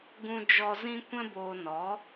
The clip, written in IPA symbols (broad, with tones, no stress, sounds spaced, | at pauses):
ɡ ũ˨ d͡ʒ ɔ˨ z ĩ˧ kʷ ɛ̃˧ b oː˨ n ɔ˨˦